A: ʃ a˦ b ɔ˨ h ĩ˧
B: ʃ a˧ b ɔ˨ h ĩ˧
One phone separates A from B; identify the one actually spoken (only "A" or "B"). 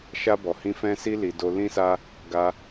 B